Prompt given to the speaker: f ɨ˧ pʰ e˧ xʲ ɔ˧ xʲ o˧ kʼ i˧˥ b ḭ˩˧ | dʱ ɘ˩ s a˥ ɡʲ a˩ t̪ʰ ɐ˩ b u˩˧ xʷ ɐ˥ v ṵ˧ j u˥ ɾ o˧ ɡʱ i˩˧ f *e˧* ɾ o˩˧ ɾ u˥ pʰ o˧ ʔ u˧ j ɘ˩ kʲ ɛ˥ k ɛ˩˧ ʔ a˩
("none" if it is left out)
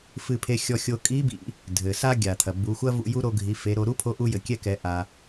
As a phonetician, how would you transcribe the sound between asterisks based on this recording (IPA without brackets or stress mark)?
e˩˧